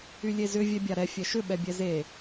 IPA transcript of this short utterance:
y lʲ e z ʏ vʲ ɛ bʲ a ɾ ɛ fʲ ɛ ʃ ʏ ɓ ɛ bʲ ɛ z e

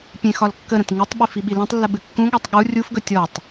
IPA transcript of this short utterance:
pʲ ẽ x ɒ l kː ə ɾ ə̃ t ŋ ɨ tˤ ɓ i f i ɓ i l ẽ tˤ lː ə ɓ ɨ kː ũ ɠ ɒ tˤ ɠ u rʲ u f ɡ ɵ tʲ ɔ tˤ

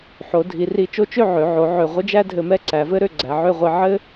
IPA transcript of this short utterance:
ħ o˩˧ dʱ i˩˧ r i˧ t͡ʃ o˥ t͡ʃ ø˥˧ ʕ ø˩˧ ʕ o˩˧ ʕ ø˧˩ ʁʷ ɘ˥ d͡ʒ æ˥ dʱ ɘ˧ m ɛ˥ ǀ æ˩˧ v ɘ˥ ɾ ø˧ ɡ͡ǀ æ˩˧ ʕ ø˥˧ ʁʷ i˧ ʕ ɘ˥

